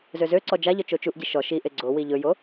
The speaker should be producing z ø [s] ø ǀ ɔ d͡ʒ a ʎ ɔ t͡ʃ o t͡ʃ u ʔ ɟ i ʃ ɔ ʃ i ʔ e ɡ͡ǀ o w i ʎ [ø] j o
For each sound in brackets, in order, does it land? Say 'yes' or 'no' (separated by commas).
no, no